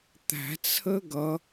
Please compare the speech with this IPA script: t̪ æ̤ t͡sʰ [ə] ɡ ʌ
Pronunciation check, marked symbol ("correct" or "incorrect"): correct